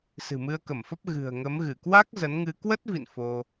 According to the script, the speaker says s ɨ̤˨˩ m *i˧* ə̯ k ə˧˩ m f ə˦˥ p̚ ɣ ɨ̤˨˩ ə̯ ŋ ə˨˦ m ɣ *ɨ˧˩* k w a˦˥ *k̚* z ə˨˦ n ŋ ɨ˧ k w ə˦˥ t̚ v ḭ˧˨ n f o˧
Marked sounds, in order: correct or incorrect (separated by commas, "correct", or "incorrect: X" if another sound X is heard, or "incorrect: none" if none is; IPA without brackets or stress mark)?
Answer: incorrect: ɨ˧, correct, correct